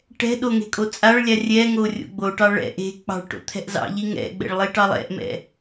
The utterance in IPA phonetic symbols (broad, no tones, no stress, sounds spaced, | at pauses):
ʈ ɛ̤ ɗ o ŋ e̤ kʼ o t͡sʼ a ɭ lʲ a rʲ ɛ ŋ o rʲ o̰ ɡ͡b o ʈ ɑ ɭ ɛ̰ ʔ e̤ k͡p ɑ̤ ɭ ʈ o̰ t̪ʰ ɛ̤ ʔ z ɑ̰ ʎ i ŋ ɛ̰ ɡ͡b ɛ̰ ɭ lˠ i ʈ ɑ lˠ ɛ̰ ʔ m ɛ̰